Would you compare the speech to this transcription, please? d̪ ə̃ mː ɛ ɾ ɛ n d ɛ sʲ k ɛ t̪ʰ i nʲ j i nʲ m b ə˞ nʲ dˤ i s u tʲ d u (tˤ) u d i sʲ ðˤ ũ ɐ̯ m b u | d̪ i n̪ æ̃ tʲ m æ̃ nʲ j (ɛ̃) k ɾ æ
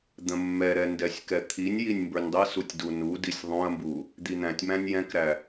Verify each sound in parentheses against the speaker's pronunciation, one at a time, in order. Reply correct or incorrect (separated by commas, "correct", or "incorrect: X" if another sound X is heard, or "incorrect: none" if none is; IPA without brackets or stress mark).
incorrect: n, correct